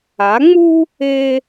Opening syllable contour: rising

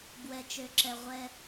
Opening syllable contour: low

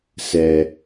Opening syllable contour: low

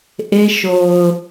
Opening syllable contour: high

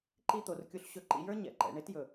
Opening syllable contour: high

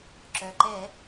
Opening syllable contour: low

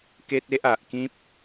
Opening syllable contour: high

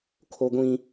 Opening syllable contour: high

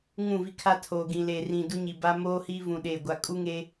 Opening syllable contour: falling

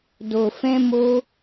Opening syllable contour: low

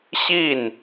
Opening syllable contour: falling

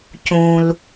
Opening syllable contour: low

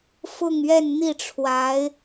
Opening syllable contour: falling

